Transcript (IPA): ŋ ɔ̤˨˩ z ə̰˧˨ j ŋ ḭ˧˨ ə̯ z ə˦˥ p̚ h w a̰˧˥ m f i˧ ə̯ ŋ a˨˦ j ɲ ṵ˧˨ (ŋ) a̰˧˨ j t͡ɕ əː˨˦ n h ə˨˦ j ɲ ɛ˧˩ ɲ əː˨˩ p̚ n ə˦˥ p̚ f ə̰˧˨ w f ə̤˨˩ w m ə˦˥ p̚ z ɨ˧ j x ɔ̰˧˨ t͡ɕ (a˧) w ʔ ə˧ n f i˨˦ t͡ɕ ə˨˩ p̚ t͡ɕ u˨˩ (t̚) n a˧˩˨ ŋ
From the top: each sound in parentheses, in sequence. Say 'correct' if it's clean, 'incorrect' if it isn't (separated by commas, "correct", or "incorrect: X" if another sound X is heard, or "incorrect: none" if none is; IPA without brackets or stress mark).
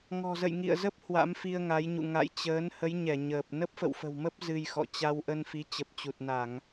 correct, correct, correct